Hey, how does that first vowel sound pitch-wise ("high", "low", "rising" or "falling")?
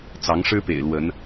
rising